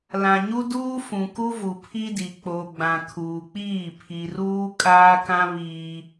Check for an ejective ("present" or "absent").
present